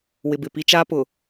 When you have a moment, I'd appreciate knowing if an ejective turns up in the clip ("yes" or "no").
no